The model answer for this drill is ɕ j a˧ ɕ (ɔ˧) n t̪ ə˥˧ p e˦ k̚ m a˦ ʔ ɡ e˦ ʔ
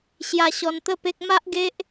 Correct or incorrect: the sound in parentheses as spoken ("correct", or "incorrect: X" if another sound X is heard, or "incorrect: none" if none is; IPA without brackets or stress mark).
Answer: correct